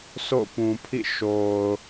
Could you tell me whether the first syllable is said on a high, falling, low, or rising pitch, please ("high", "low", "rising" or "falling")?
falling